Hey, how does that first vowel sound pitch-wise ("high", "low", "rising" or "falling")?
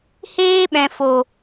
high